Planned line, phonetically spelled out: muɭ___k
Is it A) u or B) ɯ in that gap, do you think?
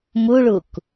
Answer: A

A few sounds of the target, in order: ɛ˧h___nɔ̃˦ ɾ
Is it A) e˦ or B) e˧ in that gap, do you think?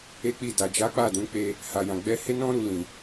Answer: A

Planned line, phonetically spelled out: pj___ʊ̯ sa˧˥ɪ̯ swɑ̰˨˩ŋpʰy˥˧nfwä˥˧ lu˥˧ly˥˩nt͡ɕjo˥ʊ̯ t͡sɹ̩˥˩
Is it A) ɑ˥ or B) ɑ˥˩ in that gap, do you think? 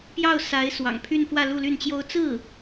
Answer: B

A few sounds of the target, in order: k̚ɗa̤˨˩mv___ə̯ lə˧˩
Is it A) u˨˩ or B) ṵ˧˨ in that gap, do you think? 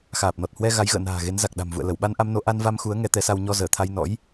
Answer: B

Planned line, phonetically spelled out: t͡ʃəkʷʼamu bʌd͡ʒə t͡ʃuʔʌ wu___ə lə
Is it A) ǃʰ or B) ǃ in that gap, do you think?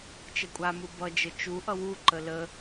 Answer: B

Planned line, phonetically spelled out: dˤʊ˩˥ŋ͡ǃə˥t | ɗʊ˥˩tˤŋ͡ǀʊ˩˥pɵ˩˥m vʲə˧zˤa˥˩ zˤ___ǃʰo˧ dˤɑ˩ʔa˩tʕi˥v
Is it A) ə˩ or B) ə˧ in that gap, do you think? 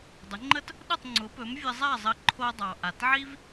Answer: B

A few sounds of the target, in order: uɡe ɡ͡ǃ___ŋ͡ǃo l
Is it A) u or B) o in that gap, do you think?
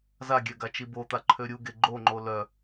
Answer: B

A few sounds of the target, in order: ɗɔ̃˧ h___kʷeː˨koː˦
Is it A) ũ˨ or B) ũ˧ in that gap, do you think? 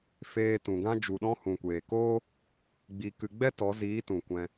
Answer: A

